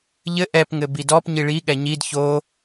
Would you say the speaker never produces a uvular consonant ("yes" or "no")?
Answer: yes